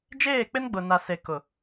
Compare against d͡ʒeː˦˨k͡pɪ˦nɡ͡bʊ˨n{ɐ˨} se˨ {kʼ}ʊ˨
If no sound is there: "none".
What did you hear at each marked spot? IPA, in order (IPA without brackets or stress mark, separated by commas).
a˨, k